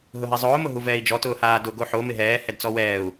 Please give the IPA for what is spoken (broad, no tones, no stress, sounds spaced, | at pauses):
ɦ ʊ ɦ ɛ zˤ ʊː m ʊ ɦ u v ɛː i̯ d͡ʒ ɔ t ʊː h aː d ʊ ɡ o ħ o m ɪ ɦ ɛː h ɛ d t͡s ɔ w ɛː u̯